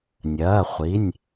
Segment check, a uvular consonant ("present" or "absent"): present